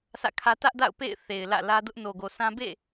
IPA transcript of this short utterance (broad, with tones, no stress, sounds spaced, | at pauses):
s ä̰˦˨ kʰ ä˦ t ä˦ ʔ d a̰˦˨ ʊ̯ p ḛ˦˨ ɪ̯ θ e˨ ɪ̯ l ä̰˦˨ l ä˦ d ʊ˦ ʔ n o˨ ɡ o˨ s ã˦ b ḛ˦˨